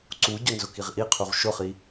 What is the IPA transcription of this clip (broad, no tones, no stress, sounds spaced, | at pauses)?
ǀ u ɟ ʊ n z ʊ k i ʁ ʔ i qʰ u ʁ ʃ ʊ χ i